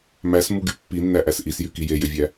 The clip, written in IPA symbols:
m æ s m u ɡ y pː i nː æ ʔ æ s ʔ i s j y k i j e j ʏ vʲ æ

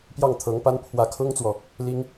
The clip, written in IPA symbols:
p j ɑ˥˩ ŋ t̪ʰ ɤ˧˥ ŋ p a˥ n pʰ w ä˧˥ kʰ ʊ˥ ŋ t͡s w ɔ˨ | l i˥ ŋ

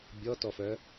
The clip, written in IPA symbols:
bʲ ɔ t ɔ f œ

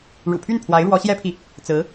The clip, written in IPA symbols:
ɻ ṵ˨˩ pʰ y˥˩ n pʰ w a˧˥ ɪ̯ ɻ w ɔ˧˥ ɕ j ɛ˥ pʰ i˨ | t͡s ɹ̩˧˥

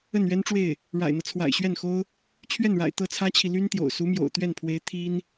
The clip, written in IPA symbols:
ə˥˩ n ɥ ɛ˥ n ʈ͡ʂ w e˥˩ ɪ̯ | ɻ a̰˨˩ ɪ̯ n̪ ɤ˦ t͡sʰ w a̰˨˩ ɪ̯ ɕ ɥ ɛ˥˩ n x o˥ ʊ̯ | t͡ɕʰ ɥ ɛ˥˩ n ɻ a̰˨˩ ɪ̯ t̪ ɤ˥˩ t͡sʰ ä˥ t͡ɕʰ i˨ l y˥ n t̪ j o̰˨˩ ʊ̯ s u˧˥ m j o̰˨˩ ʊ̯ t̪ ɥ ɛ˥˩ n pʰ w e˧˥ ɪ̯ t̪ʰ i˥ n

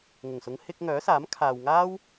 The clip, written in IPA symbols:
ŋ ʊ˨˩ ŋ s ʊ˨˧ ŋ h ɪ˧ k̚ ŋ œː˨˥ s aː˨˥ m kʰ aː˨ w ŋ aː˥ w

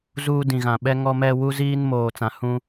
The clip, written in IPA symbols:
z uː˦ d ĩ˨ ɣ ã˨ ɓ ɛ˦ ŋ ɔ˦ m ɛ˦ w u˦ z iː˦ n m oː˨ t͡s ã˨ h ũ˦

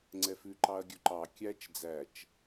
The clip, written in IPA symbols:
ŋ͡ǀ ɛ f ʉ ǃ ɑ ɐ̯ ɡʲ ɵ ǃ ɑ kʲ æ t͡ʃ d͡z æ t͡ʃ

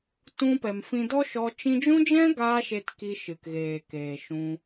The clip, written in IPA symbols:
t ũ˧ p ɛ˨ m f ĩ˧ d ɔ˦ ʃ ɔ˧ t͡ʃ ĩ˧ d͡ʒ ũ˦ d͡ʒ ɛ̃˦ ɡ aː˧ ʃ e˧ t k i˧ ʃ ɨ˨ k ɣ eː˨ k eː˨ ʃ ũ˧

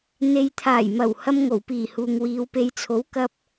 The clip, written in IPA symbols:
n̪ e˨ j t̪ʰ aː˨˩ j m ɐ˨˩ w h ɐ˧ m ŋ o˨˩ w p iː˨˩ h uː˨ ŋ w iː˨˧ w p e˨ j t͡sʰ o˨˥ w k ɐ˧ p̚

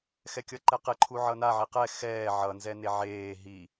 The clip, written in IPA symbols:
x ɛ kʲ ʌ ǃ ɛ q e ǃʰ u ʕ ʌ n a ʕ i q ɛ x ɛː ʕ ʌ n z ɛ n e ʕ eː ɦ i

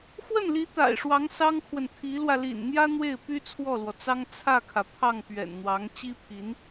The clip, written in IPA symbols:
x w ə˥˩ n l i˧˥ t̪ a̰˨˩ ɪ̯ ʂ w ɑ˧˥ ŋ s ɑ˥ ŋ kʰ w ə˨ n t̪ʰ i˧˥ l w ä˧ l ḭ˨˩ n n̪ j ä˥ n̪ w e˥˩ ɪ̯ p y˥ t͡sʰ w ɔ˥˩ l w ɔ˩ t͡s ɑ˥ ŋ t͡sʰ ä˥˩ kʰ ä˩ pʰ ɑ˥˩ ŋ p ɥ ɛ̰˨˩ n n̪ w ɑ˧˥ ŋ t͡ɕ i˥ pʰ i˧˥ n

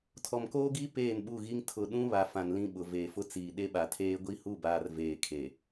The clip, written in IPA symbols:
tʰ ɔ˨ m k oː˦ ɡ iː˦ p eː˦˨ n ɓ u˦˨ ɣ i˦ ŋ tʰ ʊ˨ ɗ ũ˦ β a˨ f ã˨ n l ĩ˦ ɓ ʊ˨ v eː˨ f ʊ˦ t͡s iː˨ ɗ e˦ ɓ a˨ tʰ eː˦ ɡʷ i˦ h u˦˨ b aː˨ r v eː˨ kʰ e˨

